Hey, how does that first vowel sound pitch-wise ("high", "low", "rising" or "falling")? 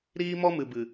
high